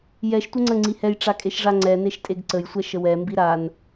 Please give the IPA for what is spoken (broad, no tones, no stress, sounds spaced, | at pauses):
j ɛ ʃ tʷ ɘ ŋ͡ǀ ə ŋ͡ǀ i h ɛ j ʈ͡ʂ a kʼ e ʃ ʐ a ŋ͡ǀ ɛ n e ʃ tʼ e ɡ ǀ ə j sʷ ɛ ʃ ə w ɛ m b i ɾ a n